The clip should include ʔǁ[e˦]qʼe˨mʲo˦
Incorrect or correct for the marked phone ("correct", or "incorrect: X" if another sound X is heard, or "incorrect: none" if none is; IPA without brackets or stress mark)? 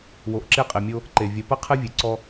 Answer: correct